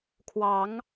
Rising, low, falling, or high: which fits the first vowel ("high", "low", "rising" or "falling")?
rising